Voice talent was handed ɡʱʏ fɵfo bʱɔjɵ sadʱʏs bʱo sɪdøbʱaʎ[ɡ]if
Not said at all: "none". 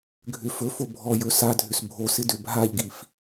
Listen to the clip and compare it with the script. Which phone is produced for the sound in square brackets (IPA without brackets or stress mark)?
ɡ